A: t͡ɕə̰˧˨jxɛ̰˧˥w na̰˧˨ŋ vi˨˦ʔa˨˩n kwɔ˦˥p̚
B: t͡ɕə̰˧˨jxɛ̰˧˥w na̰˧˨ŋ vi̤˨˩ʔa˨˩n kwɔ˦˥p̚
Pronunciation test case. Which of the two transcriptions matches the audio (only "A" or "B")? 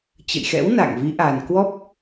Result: A